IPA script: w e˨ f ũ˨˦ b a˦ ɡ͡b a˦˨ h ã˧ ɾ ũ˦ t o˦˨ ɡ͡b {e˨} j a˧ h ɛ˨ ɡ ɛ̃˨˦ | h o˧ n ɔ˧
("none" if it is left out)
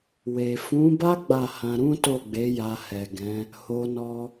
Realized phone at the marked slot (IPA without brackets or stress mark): e˨˦